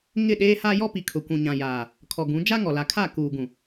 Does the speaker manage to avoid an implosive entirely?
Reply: no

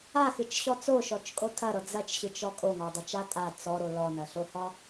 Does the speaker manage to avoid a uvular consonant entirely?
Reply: yes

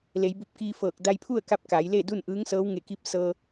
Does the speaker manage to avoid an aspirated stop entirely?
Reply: no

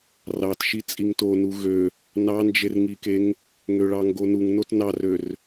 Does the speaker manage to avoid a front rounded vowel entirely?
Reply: no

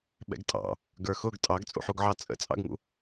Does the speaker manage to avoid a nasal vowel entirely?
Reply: yes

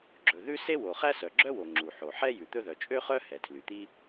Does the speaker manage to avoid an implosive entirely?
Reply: yes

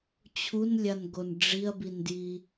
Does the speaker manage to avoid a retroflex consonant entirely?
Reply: no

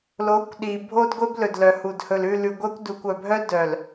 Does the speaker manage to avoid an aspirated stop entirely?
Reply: yes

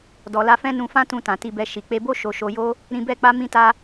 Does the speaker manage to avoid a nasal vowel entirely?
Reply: no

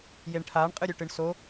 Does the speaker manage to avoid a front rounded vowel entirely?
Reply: yes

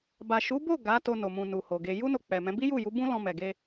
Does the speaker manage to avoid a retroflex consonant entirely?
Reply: yes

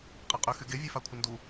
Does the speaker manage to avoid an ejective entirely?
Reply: no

